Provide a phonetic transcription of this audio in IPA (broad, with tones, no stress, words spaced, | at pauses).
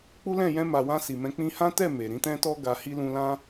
k͡pu˦lɛ̃˦˨ jɛ̃˧ma˨wã˧ si˨mɛ̃˧k͡pĩ˦ hã˦tɛ˦˨ me˨ ɾĩ˨˦tɛ̃˦tɔ˦ ɡa˧hi˦ lũ˧lã˦